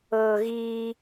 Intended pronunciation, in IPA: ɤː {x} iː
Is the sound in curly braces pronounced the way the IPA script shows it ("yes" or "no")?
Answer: no